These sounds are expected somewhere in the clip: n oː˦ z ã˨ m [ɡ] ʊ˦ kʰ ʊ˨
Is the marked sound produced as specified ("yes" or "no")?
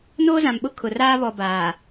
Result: no